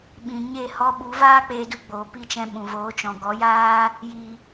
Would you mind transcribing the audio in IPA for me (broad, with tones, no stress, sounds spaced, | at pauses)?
ɓ ĩ˨ ɲ e˦˨ h ɔ˧ ɓ u˨˦ v aː˦ k͡p eː˧ d u˧ ɡ͡b oː˨ p i˦˨ t͡ʃ ɛ̃˧ ɓ ũ˨ v oː˨˦ t͡ʃ ɔ̃˨ ɡ ɔ˨˦ j aː˦ | j i˨